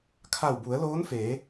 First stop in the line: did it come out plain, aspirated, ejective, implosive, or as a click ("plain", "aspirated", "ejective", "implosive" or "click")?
aspirated